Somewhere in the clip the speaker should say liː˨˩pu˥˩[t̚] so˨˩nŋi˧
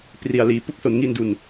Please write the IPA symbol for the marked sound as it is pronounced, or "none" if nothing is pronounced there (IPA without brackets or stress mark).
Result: k̚